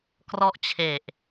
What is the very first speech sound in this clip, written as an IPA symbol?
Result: k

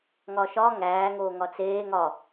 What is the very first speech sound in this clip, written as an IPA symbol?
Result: ŋ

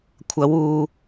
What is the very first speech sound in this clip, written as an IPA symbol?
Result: kʷʰ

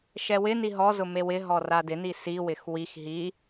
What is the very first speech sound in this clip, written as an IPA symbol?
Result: ʃ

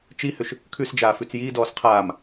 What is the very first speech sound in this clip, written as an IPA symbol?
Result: t͡ʃ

